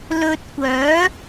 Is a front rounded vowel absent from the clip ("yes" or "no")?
no